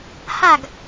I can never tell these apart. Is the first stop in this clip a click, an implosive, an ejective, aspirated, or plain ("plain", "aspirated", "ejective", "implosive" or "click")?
plain